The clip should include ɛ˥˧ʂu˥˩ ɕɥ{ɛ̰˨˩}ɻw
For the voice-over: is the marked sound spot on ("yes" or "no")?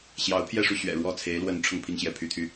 yes